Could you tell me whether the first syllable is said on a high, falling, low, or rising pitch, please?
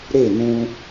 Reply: falling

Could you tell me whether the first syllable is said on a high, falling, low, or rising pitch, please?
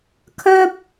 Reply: high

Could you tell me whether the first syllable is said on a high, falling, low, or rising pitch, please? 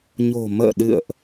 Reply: low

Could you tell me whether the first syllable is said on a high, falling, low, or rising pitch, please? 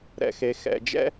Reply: low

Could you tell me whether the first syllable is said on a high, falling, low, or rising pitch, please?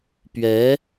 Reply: rising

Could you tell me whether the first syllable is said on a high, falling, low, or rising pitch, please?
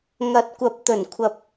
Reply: rising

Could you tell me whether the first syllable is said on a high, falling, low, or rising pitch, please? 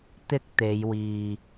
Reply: high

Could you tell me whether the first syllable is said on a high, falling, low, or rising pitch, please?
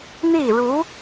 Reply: falling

